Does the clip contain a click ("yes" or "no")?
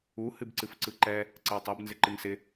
yes